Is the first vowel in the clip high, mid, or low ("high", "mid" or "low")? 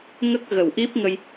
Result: mid